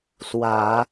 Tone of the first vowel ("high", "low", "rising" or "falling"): low